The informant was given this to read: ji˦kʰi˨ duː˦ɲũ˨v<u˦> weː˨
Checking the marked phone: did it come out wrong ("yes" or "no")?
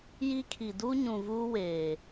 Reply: yes